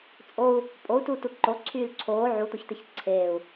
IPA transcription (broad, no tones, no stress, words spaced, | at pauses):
t͡sʼou̯ | pʼou̯tutu ǃoːǀʰyːl ǀʰoː ʕut̪oçt̪eç ǀʰeːu̯